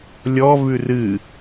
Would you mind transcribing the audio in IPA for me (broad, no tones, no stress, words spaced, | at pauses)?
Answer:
lʲɔvʉ rɨ